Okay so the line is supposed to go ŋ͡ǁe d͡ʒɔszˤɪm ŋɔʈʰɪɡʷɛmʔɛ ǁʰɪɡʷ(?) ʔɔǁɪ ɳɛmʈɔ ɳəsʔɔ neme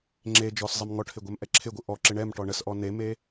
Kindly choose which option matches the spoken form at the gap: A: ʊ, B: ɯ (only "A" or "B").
B